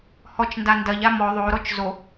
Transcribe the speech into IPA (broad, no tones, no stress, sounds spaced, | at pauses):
h ɔ t͡ʃ n d a n d ɐ ʎ a m ɔ ðˤ o ɾ ɔ t͡ʃ z o